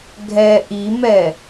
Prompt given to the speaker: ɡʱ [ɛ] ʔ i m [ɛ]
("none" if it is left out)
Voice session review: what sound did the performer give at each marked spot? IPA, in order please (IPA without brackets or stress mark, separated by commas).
ɛ, ɛ